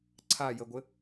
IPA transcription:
ǀʰajəɡʷɘ

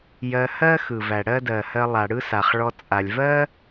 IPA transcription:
jɜ˧hɜ˦ xɯ˨væ˨ ɽɜ˦dɜ˨hɜ˧lˠa˨ ɽɯ˦sa˨χ ɭɔ˧ t͡sʼa˨lʲ vɜ˦

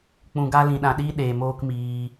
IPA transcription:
k͡pũ˧ɡa˦ lĩ˧ ɗã˧ɗiː˦ ɗeː˨moː˧k miː˧

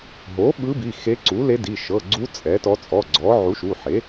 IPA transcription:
ɦo˩˥ ɓɯ˧˥bi˩˧˩ xe˧˥ǀu˩˥le˧˥di˩˧˩ ʃɤ˩˧˩ɡ͡ǀu˧˥ t͡sʼɛ˩˥tɔ˧˥ t͡sʼɔ˩˧˩ɡ͡ǀɔ˩˥ ʕu˩˥ʃu˩˧˩ħe˩˥

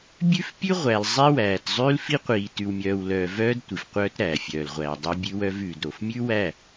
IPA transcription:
bʲʉ˦fpʲʉ˦ʁʷæ˨l zˤi˦wæː˨t zˤʉː˦lfi˦qʷiː˨ tʉ˨wmʲœː˨wlœː˨ vœː˦d tʷi˨fqʷœː˦tɾæː˨ fʲœː˨lʁʷæː˨dˤo˦ bʲʉ˦wœ˦vʉː˨d ɾo˨f mʲʉ˦wæ˦˨

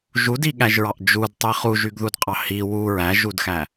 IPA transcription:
ʒudiɠæʒɹɑʔ d͡ʒudtˤi χuʒyɡðudqʼɑ hi wu ɹæʒudxæ

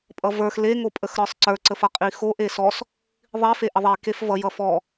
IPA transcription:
pʼʌvə˞x le ŋopʼəxɾə˞sˤǀə˞ ǀəfʌqʼixo ʔesɔs | ðˤi feʔəðˤi kefvʌj ʌfɔ

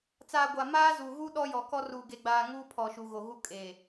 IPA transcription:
t͡saː˨ ɡʷa˨ maː˦zu˨ɣu˦ ɗɔ˦jɔ˨kɔ˦ ruː˨ɡe˨ɡ͡baː˨ ŋuː˦pʰɔ˨ʃu˨ ɣo˨ɣu˦ kʼeː˨

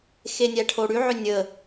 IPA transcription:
xenʲæʈʰoɽy ʕʏnʲə

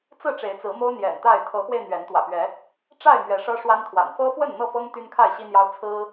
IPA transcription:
t͡sɹ̩˥˨ʈ͡ʂe˨˦ɪ̯t͡sɹ̩˨˦mo˦ʊ̯ n̪jɛ̰˨˩nt̪a˥˨ɪ̯ t̪ʰɤ˨˦xwe˧ɪ̯ n̪ɥɛ˨˦n t̪wä̰˨˩pɥɛ˨˦ | ʈ͡ʂa˥˨ɪ̯ mɥɛ˨˦ʂɤ˦ʂwa˦nt̪ʰwa̰˨˩n fɤ˦fwə˥˨n n̪ɤ˥˨fɤ˦ŋ t̪y˦nkʰa˥˨ɪ̯ɕi˦n̪jɑ˦ʊ̯ t͡sʰɹ̩˦

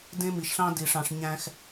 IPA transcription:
dẽ˦mi˨ʃɬɑ̃˦di˨ ʂɑ̃˧ʂɲæ̃˦x

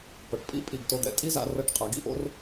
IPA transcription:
pɤ˩˧ʈpʼḭ˥ pʼi˧˩ɡto˧d̪ɛ̰˧ tʼi˥za̰˧rɤ˧ʈ qʼa˩˧ɡḭ˥ʔo̰˥r

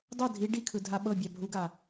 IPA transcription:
dˤɤ dʱi ɖikʰɯ dʱaɓɤbʲa bʱuɡa

